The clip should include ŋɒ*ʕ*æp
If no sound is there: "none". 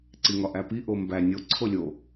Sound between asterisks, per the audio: ʔ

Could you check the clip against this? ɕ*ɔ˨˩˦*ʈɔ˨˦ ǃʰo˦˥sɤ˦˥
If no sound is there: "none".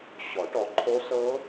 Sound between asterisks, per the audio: ɔ˨˩˦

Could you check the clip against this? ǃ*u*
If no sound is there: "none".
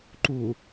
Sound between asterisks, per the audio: u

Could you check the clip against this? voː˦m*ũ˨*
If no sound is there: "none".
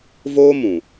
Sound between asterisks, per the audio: ũ˨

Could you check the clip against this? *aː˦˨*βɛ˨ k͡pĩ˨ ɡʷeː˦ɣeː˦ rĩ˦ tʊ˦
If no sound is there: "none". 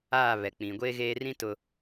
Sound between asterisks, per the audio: aː˦˨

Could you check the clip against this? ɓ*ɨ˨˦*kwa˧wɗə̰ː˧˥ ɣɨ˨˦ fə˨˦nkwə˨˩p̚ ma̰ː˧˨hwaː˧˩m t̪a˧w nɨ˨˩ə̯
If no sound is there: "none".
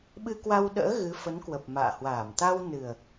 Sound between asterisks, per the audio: ɨ˧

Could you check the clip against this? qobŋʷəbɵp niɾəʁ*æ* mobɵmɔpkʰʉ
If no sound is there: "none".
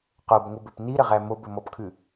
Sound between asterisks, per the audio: æ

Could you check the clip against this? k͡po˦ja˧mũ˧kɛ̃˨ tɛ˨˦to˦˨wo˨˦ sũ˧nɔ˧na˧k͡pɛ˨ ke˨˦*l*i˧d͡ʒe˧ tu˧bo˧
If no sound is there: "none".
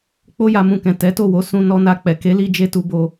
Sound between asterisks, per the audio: l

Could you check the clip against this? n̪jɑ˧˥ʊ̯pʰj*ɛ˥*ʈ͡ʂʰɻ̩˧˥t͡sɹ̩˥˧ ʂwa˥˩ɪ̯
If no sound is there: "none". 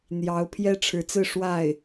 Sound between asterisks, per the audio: ɛ˥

